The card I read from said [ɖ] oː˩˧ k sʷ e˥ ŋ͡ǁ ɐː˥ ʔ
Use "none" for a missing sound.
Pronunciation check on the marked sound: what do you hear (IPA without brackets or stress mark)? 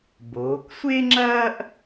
b